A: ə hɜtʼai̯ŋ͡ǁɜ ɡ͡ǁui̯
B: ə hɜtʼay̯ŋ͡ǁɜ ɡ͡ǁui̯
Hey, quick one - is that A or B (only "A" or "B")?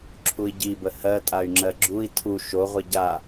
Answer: B